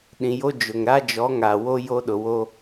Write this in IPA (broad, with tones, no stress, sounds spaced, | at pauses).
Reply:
ɗ ĩ˨ j o˦ d͡ʒ ʊ˨ ŋ ɾ a˦ d͡ʒ ɔ˨˦ ŋ a˨ w o˦ j o˦ ɗ ʊ˨ w o˦